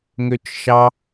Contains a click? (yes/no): no